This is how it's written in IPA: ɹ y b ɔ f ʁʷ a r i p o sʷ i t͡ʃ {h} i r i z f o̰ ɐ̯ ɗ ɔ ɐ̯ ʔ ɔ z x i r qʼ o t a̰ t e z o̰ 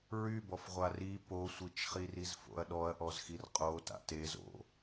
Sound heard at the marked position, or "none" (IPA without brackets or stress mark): χ